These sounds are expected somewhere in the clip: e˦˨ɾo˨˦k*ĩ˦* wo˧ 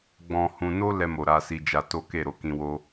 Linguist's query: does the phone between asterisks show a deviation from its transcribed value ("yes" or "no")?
yes